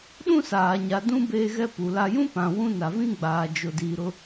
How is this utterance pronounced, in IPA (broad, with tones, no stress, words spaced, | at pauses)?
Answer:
ɗũ˦saː˨ ɲa˨dũ˦ beː˦ɣɛ˦pu˨ la˨jũ˦ pã˨wũ˦ na˨vĩ˦ɡ͡baː˨ d͡ʒʊ˨diː˨ɾʊ˦